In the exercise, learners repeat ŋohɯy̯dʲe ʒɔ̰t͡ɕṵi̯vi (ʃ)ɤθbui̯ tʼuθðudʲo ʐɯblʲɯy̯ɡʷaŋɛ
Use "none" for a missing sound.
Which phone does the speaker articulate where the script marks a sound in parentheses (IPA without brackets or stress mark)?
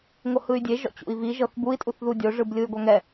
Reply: ʒ